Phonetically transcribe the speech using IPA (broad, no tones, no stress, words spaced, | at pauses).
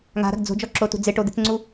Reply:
ŋa̤ɾa̤ɡ d͡zo̤d͡ʒɔǁotṳ d͡zɪʈo d̪ɪt͡sŋ͡ǀu